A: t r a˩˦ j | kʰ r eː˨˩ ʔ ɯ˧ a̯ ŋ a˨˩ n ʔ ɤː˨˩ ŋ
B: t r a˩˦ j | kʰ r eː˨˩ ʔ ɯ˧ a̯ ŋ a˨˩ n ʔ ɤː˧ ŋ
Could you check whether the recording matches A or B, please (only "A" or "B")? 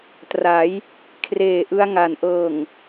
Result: A